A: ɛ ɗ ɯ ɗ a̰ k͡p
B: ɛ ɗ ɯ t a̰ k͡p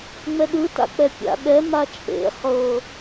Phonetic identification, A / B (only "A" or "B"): B